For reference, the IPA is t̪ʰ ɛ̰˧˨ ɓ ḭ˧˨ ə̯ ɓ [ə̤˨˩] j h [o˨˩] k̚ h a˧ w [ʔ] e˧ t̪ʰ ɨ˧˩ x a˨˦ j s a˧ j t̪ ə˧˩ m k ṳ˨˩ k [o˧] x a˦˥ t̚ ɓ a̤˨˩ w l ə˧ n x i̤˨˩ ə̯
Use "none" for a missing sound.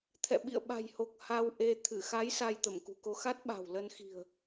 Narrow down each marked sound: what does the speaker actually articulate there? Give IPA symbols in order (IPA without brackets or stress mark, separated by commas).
a̤˨˩, o˨˩, ʔ, o˧